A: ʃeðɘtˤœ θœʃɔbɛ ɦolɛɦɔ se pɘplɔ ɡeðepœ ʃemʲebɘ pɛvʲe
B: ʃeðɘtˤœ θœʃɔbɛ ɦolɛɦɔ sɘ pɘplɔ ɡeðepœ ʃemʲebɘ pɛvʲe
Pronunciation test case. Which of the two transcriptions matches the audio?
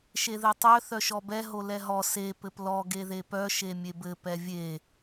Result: A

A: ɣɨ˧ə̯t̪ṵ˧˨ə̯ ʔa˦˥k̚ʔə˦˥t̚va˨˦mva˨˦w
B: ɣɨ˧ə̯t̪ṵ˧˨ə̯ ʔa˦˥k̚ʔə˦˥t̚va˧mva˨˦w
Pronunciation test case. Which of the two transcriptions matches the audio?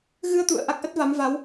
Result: A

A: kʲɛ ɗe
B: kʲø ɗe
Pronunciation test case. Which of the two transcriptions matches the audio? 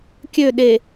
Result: B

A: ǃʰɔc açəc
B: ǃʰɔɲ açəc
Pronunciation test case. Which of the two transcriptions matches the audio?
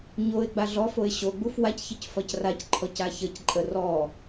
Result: A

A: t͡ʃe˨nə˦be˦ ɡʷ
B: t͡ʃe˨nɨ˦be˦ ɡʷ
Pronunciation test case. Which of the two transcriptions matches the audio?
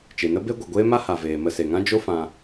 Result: A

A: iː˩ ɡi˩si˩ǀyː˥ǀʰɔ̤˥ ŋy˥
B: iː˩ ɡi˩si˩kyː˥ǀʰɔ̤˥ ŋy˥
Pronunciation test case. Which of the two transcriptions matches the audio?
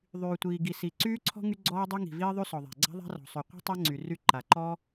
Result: A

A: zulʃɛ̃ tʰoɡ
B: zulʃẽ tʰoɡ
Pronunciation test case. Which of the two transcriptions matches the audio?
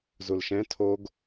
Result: A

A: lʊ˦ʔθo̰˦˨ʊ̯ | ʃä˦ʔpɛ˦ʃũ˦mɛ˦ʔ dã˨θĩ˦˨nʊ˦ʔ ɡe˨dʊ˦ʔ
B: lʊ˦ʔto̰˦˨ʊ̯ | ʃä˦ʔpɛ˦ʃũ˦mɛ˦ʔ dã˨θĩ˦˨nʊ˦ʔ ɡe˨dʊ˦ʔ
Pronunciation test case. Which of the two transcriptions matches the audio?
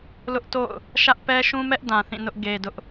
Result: B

